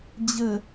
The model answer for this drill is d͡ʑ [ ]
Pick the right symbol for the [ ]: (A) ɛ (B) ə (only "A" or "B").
B